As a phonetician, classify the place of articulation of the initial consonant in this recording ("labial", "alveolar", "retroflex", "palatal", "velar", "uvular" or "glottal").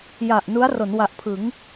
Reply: palatal